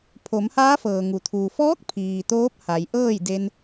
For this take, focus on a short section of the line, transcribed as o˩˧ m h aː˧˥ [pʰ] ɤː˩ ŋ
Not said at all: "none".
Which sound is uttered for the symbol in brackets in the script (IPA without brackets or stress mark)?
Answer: f